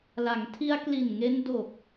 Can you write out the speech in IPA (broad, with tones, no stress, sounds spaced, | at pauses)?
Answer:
l a˩˦ ŋ tʰ i˧ a̯ k l i˨˩ n ŋ e˧ n d o˨˩ k̚